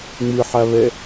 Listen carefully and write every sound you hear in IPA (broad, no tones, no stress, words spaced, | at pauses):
ŋ͡mɯħaβɛ